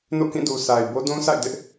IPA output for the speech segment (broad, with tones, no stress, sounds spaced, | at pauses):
n o̰˦˨ k ĩ˦˨ d u˨ s a˨ ɪ̯ b o˦ d ũ˦ sʰ a̰˦˨ ɪ̯ d ɪ˦ ʔ